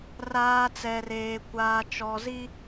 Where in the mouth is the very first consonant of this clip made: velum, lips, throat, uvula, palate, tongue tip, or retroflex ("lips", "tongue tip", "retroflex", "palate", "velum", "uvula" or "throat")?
tongue tip